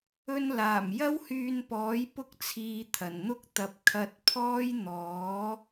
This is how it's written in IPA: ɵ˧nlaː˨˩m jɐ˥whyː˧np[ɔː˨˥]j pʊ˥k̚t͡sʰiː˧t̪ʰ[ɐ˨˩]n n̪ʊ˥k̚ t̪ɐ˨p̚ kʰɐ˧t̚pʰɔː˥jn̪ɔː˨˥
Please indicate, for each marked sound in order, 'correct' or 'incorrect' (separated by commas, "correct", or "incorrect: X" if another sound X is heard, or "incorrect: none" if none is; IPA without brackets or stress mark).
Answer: correct, correct